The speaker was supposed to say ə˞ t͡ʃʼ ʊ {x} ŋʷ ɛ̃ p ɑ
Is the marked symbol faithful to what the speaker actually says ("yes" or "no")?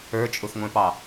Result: yes